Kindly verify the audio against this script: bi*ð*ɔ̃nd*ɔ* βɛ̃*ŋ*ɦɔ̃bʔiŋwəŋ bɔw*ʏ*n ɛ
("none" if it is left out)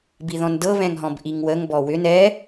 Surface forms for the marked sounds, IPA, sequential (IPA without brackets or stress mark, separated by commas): ð, ɤ, ŋ, ʏ